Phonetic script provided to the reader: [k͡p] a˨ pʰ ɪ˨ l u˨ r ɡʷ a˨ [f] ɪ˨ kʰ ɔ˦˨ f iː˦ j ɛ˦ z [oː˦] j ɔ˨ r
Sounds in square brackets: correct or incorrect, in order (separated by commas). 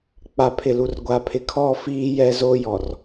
correct, incorrect, correct